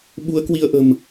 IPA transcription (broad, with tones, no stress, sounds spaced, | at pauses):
ɓ u˨˦ ə̯ k w i˧ ə̯ ʔ ə̤˨˩ m